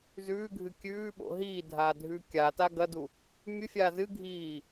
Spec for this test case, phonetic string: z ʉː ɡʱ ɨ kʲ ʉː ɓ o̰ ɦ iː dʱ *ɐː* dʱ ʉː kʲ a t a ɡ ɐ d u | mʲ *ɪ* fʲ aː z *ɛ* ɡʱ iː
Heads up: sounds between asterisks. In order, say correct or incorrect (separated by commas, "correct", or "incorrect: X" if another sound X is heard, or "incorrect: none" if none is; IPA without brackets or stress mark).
incorrect: aː, incorrect: ɨ, incorrect: ɨ